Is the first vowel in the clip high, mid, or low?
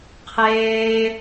mid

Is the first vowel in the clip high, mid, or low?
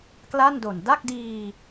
low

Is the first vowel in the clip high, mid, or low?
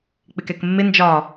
high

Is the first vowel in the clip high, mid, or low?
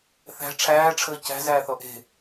low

